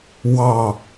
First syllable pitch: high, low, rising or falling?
falling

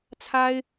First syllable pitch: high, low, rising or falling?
high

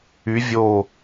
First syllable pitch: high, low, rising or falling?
rising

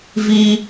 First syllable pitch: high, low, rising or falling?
high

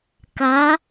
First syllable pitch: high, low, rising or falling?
rising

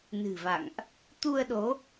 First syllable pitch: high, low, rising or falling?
low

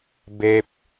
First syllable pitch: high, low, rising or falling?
high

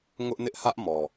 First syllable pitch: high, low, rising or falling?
high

